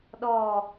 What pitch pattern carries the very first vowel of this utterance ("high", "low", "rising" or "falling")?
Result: falling